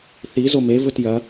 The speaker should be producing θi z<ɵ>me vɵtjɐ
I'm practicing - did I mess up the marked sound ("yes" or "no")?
yes